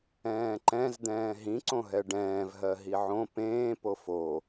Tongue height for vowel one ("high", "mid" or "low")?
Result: mid